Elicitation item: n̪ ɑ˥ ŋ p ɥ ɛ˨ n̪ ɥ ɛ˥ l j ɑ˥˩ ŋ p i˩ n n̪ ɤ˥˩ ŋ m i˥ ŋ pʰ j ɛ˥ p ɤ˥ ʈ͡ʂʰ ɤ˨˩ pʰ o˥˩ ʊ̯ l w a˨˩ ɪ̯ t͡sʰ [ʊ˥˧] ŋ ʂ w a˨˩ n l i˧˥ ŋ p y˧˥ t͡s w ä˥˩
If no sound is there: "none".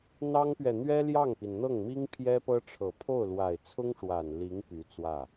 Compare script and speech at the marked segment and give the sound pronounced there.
ʊ˥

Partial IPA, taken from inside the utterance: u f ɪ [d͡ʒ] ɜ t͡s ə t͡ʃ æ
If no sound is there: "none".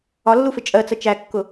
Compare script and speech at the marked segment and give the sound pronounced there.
t͡ʃʼ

